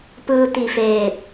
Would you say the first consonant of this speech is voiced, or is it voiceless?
voiceless